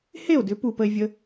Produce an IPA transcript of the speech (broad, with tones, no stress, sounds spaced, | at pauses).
h e˦˨ o̯ d ʏ˨˦ p u˧ p ə˧ e̯ vʲ ə˧